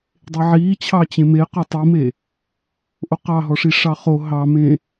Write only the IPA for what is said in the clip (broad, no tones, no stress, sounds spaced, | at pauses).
dˤ e ʕ iː t͡ɕʰ ɑ t͡ɕ ẽ m e q ɔ tˤ i m e | ʔ o q ɑ ɦ ɔ ʂ i ʂ ɑ χ o ɦ ɑ m ẽ